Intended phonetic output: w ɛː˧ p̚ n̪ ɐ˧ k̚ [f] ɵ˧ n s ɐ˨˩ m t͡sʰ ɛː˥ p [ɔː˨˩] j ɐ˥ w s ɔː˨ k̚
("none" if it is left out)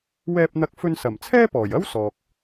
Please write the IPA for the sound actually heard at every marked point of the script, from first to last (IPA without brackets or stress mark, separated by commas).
f, ɔː˨˩